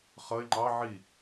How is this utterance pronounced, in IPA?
χ ʌ ɪ̯ ŋ͡ǃ ɑ ʕ i

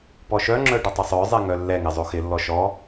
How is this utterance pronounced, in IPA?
p ɔ ʃ œ ŋ͡ǁ œ ɖ ʊ tˤ ʊ sˤ œ zˤ ɛ ŋ œ lː ɛ ŋ ɪ zˤ o x ɪ lː ɔ ʃ ɔ

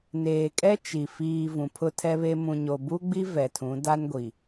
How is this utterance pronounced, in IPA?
n eː˨ kʼ ɛ˦ t͡ʃ i˨ f iː˨ v ũ˨ pʰ ʊ˦ tʰ ɛ˦ β e˦ m ũ˨ ɲ o˨ b u˦ ɡ͡b i˦ v ɛ˨ tʰ ũ˨˦ d a˦ n ɡʷ i˨

